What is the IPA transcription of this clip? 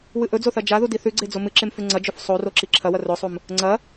w ɨ ʔ ɵ d͡z o θ ɐ d͡ʒ a ð u d i θ ʉ ɡ͡ǀ e d͡z o m ɨ ǁ e m f ʉ ŋ͡ǀ ɐ d͡ʒ ɵ f sˤ o r o ǁ i ǁʰ ɐ w ɐ r ɵ sˤ u m | ŋ͡ǀ ɐ

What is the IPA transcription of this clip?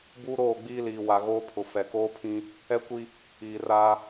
b uː˦ ɾ oː˦˨ ɡ͡b iː˦ l iː˨ w a˨ ɣ oː˦ pʰ ʊ˨ f ɛ˨ k oː˦ pʰ ĩ˦ | ɛ˦ kʷ i˦ | iː˨ r aː˦

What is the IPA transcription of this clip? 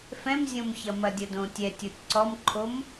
f ɛ̃ m zʲ õ m ç ɐ m ɐ dʲ ɐ d õ tʲ ɛ tʲ o tʲ ǀ ɔ m ǃʰ o m

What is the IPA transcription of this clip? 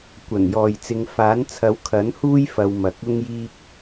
kʷ ɐ˨˩ n j ɔː˨ j t͡s ɪ˨˧ ŋ f aː˨˥ n t͡sʰ ɐ˨˥ w kʰ ɐ˨˥ n h uː˥ j f ɐ˧ w m ɐ˨ k̚ ʊ˧ ŋ j iː˧ k̚

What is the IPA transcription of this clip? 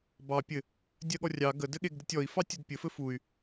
b ɑ pʲ ɘ | dʲ ɜ ɠ ɔ rʲ ɑ ɡ ə d ɘ ɠ e ɡ d ɘ tʲ ɔ i̯ f ɑ tʲ ə d pʲ ɘ f ɘ f u y̯

